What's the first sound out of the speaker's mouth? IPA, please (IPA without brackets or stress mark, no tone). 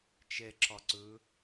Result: t͡ʃ